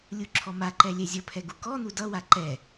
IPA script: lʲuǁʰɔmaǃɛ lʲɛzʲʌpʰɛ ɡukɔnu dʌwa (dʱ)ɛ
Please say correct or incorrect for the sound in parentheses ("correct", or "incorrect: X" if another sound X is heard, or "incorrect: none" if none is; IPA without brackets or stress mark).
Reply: incorrect: ǃ